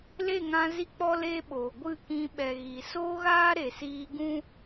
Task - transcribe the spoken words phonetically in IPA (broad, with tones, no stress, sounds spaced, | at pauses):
l e˦˨ ŋ ã˧ z i˦ k͡p ɔ˦ l eː˦ ɓ oː˨ ɡʷ ɨ˦˨ k ĩ˧ ɓ ɛ˨ ɣ i˨ s oː˦ ɣ aː˦ ɾ e˨ s iː˧ ɡ ũ˦